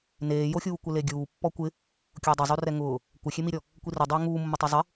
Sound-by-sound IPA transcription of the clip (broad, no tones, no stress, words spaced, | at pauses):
neːjoxʲuː kʷɪleɡʲuːpːɔ kʷɪ | kʲʊːdˤɪzˤorɛ ŋʊː | kʷɪxʲemiɾʲɔ | kʷirʊdˤʊː ŋuːmːʊtˤe zˤɪ